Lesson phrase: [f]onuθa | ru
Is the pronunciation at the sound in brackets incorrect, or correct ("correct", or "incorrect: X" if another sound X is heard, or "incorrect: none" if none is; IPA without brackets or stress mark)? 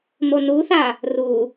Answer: incorrect: m